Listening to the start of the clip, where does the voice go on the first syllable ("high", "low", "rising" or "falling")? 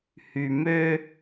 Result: low